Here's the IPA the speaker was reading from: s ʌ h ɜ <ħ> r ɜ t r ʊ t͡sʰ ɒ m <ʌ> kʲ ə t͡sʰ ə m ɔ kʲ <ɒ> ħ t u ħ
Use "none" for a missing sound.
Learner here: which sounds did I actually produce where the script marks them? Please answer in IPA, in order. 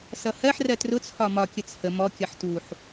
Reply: ħ, ɒ, ʌ

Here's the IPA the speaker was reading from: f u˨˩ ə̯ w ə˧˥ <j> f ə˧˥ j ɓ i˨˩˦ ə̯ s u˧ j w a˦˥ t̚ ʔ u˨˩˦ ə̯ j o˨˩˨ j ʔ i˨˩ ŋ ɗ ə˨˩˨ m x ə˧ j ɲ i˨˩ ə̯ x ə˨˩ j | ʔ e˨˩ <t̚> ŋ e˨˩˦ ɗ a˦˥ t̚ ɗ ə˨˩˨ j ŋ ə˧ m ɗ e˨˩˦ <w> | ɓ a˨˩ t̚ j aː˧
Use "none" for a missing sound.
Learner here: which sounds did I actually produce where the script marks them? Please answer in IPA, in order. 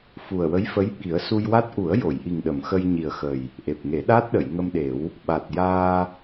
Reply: j, p̚, w

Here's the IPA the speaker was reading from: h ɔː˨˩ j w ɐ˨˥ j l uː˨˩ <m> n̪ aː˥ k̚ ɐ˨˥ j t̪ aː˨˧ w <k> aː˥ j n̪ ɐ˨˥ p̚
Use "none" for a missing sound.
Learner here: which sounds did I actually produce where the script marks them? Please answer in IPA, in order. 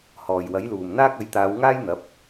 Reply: m, ŋ

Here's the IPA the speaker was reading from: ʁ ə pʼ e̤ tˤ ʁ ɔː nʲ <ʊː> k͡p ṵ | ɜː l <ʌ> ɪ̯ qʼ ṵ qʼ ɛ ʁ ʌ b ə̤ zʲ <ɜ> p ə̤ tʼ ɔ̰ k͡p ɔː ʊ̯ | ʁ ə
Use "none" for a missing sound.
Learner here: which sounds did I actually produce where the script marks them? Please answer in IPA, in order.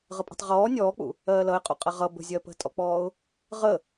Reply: ɔː, ʌ, ɜ

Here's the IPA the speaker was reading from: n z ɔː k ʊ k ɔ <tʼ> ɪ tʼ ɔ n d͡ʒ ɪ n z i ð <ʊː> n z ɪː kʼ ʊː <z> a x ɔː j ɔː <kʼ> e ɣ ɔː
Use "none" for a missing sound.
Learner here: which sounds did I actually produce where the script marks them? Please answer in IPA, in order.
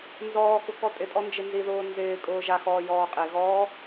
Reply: tʼ, ʊː, ʒ, qʼ

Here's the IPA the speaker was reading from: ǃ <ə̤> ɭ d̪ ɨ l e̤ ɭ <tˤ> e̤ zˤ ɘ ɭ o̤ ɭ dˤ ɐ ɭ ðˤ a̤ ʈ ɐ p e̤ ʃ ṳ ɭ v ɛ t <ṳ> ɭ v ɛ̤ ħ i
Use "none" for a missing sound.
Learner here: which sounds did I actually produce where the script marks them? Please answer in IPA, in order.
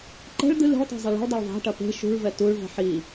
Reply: ɛ̤, tˤ, u

